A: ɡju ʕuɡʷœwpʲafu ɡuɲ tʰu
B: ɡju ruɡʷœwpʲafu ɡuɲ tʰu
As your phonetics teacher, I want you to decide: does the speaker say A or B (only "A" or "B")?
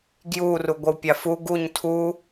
B